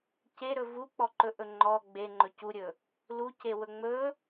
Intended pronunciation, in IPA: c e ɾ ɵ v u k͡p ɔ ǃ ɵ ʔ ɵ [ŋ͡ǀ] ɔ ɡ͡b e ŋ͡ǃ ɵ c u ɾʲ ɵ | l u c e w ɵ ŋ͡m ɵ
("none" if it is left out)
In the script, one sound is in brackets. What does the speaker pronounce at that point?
ŋ͡ǃ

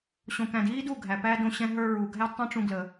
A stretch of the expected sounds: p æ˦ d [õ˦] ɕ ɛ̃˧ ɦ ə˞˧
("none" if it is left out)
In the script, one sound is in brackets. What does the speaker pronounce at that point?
õ˦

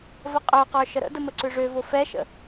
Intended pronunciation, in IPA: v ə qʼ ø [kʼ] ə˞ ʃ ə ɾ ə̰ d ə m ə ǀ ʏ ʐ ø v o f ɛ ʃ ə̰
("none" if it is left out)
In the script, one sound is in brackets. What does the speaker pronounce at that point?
q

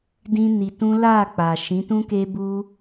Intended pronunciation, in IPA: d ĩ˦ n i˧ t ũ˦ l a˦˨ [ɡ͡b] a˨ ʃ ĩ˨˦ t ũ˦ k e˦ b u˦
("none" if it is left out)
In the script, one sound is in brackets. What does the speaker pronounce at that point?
k͡p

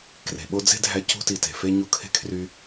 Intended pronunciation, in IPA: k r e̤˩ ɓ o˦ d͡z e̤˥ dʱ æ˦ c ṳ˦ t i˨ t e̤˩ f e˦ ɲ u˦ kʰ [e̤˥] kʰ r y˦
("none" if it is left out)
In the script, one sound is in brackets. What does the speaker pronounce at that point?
e̤˥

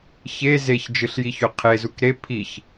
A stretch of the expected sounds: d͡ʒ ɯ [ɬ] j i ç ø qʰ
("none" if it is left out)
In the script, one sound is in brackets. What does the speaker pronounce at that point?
ɬ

